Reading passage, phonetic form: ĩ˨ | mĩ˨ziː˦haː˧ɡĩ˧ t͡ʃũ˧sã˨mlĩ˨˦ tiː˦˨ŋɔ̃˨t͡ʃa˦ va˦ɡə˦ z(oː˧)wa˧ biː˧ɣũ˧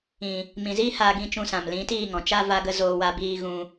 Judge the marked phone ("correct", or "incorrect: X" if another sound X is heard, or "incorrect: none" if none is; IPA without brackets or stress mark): correct